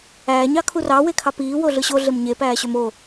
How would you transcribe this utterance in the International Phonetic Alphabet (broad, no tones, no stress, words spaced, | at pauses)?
æːɲɑkʰu rɑwekʰɑ piːwoɮɯ ɕoɮem ɲepæːɕøm o